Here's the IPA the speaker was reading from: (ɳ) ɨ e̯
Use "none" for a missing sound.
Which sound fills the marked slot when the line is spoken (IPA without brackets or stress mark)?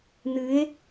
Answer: n̪